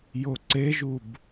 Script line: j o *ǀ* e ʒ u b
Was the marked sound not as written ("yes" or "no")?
no